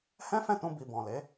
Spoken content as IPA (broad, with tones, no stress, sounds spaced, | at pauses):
h ɛ̃˦ f ɛ̃˦˨ t ũ˧ b i˨ b ɔ̃˨ l e˨˦